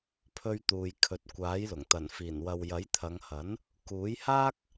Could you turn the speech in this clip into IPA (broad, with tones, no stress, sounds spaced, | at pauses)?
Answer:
pʰ ɵ˧ ɥ t̪ uː˨ j kʰ ɵ˨ t̚ kʷ aː˨˥ j l ʊ˨˩ ŋ t̪ ɐ˨˩ n f iː˨˩ n w ɐ˨ w j ɐ˨˥ j t̪ʰ ɐ˨˧ ŋ h ɐ˨˥ n | k uː˨˥ j h aː˥ k̚